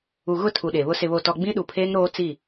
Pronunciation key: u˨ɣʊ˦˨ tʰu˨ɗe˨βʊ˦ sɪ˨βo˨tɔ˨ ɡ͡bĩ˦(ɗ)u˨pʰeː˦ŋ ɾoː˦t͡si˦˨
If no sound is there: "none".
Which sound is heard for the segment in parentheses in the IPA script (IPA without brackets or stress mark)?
ɗ